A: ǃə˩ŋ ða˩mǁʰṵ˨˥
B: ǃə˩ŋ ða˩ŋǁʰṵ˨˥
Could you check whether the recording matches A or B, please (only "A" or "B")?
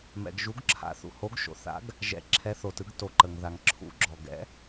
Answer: B